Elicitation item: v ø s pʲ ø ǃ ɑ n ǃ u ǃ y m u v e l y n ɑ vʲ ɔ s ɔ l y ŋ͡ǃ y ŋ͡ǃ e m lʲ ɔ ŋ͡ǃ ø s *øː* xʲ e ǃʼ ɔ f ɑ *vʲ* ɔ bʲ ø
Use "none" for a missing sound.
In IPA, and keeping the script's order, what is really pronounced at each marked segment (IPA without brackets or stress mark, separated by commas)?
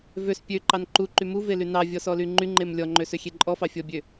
ø, fʲ